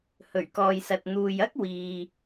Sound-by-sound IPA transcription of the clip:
h ɵ˨˩ ɥ k ɔː˨ j s ɐ˨ t̚ n̪ uː˨ j ɐ˥ k̚ w iː˨

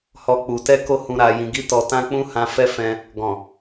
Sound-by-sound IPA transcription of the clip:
h ɔ˦ k͡p u˧ t ɛ˦ k o˦ h ũ˧ ɾ a˧ j ĩ˧ ɡ i˦ t ɔ˧ t ã˦ k͡p ũ˦ h ã˦ f ɛ˦ f ɛ̃˧ | ɡ ɔ̃˨

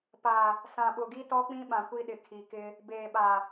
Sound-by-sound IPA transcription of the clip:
p a˨ | s ã˨ ɓ ʊ˨ ɡ i˦ t ɔ˦ k͡p ĩ˦ ɓ ã˨ kʷ i˦ ɗ ɪ˨ kʰ i˨ k ɪ˦ | b eː˨ ɓ a˨

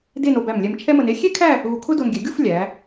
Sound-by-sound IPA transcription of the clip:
d e˥˧ n o˧ b æ˧˩ m lʲ ɛ˧ m t͡ʃʰ ɛ˥ m ə˧ n e˥ xʲ e˥ kʰ æ˥˧ | ɣ u˧ kʰ ʊ˥ d o˧ n ɡʲ ɛ˩˧ ɡʲ u˥˧ f lʲ æ˩˧

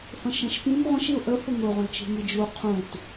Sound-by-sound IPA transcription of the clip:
f ə̃ ʃ ɛ̃ ʃ p ĩ m ʁʷ ə̃ ʃ i ʊ̯ ʔ ə f ʊ ŋ ʊ ʁʷ ə̃ l t͡ʃ i̤ ŋ i d͡ʒ u qʰ ũ t

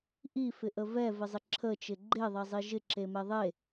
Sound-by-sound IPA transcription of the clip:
ʔ i f ɪ ʔ ə v ɛ v ɪ zˤ ɪ ǁʰ ə t͡ʃ ɪ ɡ͡ǃ e ðˤ ɛ zˤ i ʒ ɪ ǁ e m ɛ ðˤ e

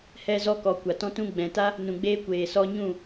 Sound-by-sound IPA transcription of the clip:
h ɛ˧ z ɔ˧ k ɔ˨ kʷ a˨ t ɔ̃˦ t ũ˧ ɡ͡b ɛ̃˨ t a˦ | n ũ˨ ɡ͡b eː˧ kʷ eː˨ s ɔ˧ ɲ ũ˦˨

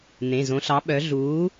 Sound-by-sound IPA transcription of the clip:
n̪ ẽ˩˧˩ z õ˨˥ ɬ ɑ˨˥ ɓ œ˨˥ ɮ uː˨˥

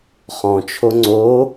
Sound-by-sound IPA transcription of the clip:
χ ɔ̃ t͡ʃʰ o ŋ͡ǀ o

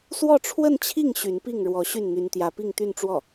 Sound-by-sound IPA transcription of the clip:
s w ɔ˥˧ ʈ͡ʂʰ w ə˥˧ n t͡ɕʰ i˥˩ ŋ ɕ y˧˥ n p i˥˩ ŋ ɻ w ɔ˧˥ ɕ y˥˩ n n̪ y˧˥ n t̪ j ä˧˥ p i˥˧ ŋ t̪ y˥˧ n ʈ͡ʂ w ɔ˥˩

